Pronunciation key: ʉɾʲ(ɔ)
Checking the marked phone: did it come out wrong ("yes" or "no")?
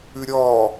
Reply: no